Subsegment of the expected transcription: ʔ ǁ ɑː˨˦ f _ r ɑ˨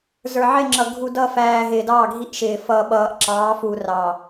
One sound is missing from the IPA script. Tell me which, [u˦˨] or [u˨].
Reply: u˨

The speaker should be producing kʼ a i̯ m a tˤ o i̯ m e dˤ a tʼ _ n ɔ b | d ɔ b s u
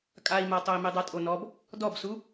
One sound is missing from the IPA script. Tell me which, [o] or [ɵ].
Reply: o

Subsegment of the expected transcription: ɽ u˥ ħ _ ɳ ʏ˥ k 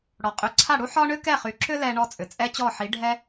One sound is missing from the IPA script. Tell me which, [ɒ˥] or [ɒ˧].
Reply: ɒ˥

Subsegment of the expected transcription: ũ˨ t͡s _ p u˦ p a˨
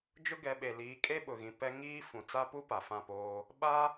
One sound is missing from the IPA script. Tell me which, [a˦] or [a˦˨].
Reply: a˦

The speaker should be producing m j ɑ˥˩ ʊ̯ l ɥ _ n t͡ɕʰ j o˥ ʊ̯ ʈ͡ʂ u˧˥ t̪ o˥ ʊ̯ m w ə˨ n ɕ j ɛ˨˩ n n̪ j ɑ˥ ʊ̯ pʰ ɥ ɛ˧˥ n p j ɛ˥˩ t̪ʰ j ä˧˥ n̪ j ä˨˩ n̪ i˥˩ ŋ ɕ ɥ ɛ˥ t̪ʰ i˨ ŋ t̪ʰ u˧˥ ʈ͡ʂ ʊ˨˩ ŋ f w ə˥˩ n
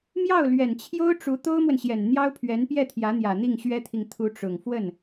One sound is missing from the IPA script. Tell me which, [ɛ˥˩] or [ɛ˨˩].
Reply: ɛ˨˩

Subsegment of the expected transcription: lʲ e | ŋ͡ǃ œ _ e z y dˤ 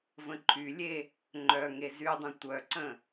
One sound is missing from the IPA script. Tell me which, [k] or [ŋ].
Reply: ŋ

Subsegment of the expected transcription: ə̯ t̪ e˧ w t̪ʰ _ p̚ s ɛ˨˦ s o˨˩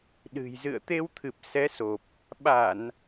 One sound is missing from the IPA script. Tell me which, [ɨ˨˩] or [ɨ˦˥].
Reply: ɨ˨˩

